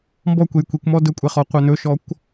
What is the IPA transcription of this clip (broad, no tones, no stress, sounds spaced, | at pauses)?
m b ɔ kʷ e j kʷ i kʷ m ɔ d ɵ kʷʼ ɛ χ ɔ qʷ œ n ɵ ʃ ɔ kʷ